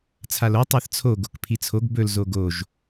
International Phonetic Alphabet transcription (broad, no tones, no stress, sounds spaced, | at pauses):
t͡sʰ a l o tˤ a θ t͡sʰ o ɡ o k pʰ i t͡sʰ o ɡ b ɵ l z o ɡ o ʒ